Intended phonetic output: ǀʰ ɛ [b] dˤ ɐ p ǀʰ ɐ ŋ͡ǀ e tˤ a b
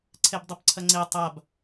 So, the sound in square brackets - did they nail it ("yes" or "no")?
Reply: yes